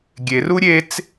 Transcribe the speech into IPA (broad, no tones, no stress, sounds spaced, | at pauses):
ɡʲ e r u ɾʲ e t͡s